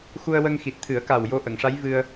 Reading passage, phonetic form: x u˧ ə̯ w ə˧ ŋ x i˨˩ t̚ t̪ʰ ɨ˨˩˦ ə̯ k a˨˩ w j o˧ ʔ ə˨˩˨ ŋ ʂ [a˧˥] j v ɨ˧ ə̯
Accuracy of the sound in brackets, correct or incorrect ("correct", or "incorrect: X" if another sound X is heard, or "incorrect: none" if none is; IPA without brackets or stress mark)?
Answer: correct